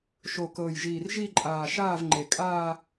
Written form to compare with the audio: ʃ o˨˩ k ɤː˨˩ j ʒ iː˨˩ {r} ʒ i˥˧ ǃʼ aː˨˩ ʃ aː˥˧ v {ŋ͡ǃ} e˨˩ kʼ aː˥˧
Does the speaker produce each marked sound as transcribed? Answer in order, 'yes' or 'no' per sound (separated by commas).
yes, yes